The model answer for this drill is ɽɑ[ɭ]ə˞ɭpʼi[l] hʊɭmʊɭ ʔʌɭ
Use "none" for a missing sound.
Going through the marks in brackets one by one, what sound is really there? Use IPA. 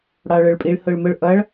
ɭ, ɭ

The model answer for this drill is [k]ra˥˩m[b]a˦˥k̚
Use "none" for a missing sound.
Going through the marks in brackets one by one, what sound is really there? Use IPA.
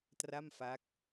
t, f

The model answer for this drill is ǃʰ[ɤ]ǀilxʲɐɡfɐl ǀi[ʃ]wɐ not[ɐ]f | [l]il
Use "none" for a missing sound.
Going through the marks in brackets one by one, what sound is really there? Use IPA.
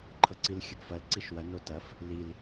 ɤ, ʃ, ɐ, l

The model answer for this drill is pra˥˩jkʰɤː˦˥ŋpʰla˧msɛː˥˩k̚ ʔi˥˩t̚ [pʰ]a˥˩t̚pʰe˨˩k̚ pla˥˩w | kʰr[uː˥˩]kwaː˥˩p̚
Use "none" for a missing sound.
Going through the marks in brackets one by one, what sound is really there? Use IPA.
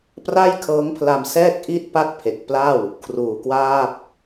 p, uː˨˩

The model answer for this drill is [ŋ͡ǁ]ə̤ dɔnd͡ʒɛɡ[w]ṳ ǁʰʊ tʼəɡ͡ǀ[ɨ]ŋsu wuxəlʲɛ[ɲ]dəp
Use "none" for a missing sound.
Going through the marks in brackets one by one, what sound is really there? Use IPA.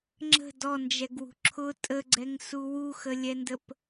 ŋ͡ǁ, w, ɛ, n

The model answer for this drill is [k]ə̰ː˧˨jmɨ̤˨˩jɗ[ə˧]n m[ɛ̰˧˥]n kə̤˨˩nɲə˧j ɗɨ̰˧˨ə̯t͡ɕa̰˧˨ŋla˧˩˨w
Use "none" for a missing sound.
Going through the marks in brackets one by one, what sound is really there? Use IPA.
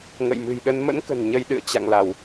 ŋ, ə˧, ə̰˧˥

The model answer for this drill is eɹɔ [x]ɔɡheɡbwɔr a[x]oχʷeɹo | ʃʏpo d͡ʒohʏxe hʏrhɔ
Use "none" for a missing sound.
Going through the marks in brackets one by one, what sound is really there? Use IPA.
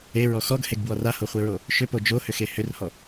x, h

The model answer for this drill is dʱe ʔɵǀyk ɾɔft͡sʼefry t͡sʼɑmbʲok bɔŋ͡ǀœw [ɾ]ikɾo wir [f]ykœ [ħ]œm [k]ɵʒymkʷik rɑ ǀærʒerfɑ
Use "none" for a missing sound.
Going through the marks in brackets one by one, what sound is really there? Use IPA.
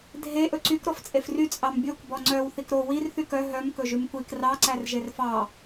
θ, θ, ɦ, k

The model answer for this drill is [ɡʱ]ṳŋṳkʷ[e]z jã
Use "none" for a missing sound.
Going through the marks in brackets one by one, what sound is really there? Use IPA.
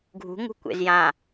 ɡʱ, ḛ

